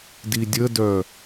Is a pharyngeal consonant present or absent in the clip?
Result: absent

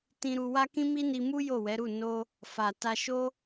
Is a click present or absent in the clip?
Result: absent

